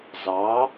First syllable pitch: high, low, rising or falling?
rising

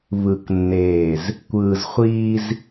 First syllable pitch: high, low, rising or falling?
low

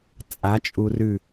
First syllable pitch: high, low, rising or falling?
rising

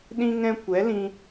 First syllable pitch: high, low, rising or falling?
high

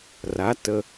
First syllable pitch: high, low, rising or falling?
rising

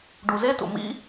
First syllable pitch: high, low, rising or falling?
low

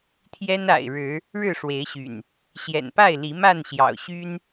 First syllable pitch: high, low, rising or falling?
high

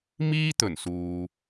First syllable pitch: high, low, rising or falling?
high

